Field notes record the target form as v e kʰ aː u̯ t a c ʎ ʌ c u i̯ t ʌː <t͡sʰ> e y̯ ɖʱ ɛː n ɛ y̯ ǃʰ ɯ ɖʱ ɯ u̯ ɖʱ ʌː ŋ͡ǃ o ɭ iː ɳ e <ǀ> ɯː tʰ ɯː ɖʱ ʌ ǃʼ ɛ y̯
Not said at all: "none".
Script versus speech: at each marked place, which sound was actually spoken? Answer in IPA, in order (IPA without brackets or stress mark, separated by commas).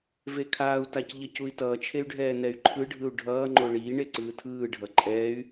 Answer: t͡ʃʰ, ǀ